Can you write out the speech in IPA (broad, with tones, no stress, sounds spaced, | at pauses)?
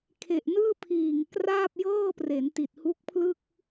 kʰ e˨˩ ʔ n ɯː˥˩ pʰ iː˨˩ ŋ k r aː˥˩ p̚ j ɤː˥˩ p r e˩˦ n t i˨˩ t̚ h u˦˥ k̚ pʰ l ɯ˥˩ k̚